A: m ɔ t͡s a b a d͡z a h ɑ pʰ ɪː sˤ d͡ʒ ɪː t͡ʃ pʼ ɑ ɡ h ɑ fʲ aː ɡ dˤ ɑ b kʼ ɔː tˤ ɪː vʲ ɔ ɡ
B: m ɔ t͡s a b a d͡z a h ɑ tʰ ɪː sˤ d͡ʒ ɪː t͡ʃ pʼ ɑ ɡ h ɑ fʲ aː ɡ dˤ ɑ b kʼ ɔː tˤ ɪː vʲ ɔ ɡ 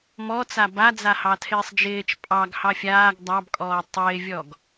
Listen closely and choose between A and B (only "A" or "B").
B